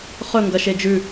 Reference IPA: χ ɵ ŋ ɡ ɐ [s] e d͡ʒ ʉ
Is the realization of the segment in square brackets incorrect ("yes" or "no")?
yes